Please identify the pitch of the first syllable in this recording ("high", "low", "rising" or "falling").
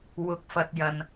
rising